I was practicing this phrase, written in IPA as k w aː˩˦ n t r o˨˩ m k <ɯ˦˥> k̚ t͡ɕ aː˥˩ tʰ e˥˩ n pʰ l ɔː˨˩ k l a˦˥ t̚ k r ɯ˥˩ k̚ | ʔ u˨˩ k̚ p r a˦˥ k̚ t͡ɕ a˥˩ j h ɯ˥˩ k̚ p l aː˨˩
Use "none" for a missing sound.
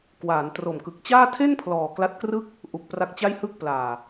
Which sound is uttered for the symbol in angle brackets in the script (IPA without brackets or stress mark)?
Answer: ɯ˨˩